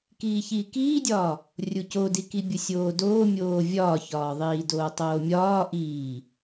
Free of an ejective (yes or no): yes